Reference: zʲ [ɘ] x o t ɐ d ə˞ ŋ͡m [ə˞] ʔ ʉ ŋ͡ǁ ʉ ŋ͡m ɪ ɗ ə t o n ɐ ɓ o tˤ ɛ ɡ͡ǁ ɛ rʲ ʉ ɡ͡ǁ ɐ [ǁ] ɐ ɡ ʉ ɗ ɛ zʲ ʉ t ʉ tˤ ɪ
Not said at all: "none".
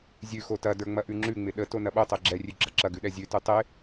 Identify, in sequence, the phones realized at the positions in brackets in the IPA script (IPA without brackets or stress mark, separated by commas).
ʉ, ɐ, ǁ